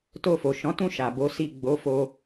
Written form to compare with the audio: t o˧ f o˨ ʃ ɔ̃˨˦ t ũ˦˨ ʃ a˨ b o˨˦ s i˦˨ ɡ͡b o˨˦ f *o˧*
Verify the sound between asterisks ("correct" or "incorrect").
correct